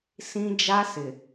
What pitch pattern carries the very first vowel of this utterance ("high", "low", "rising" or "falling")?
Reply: high